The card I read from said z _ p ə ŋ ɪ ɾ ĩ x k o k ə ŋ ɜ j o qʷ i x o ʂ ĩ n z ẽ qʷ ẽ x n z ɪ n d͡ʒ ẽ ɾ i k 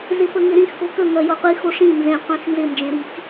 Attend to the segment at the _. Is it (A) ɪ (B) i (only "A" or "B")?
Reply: A